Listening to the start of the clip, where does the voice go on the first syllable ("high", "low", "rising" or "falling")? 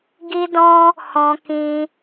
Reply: high